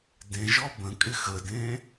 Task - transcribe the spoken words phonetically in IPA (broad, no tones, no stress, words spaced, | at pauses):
dẽʒɔ bə̃kʼɪ xədẽ